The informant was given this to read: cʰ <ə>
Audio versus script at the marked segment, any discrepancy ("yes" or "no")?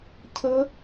no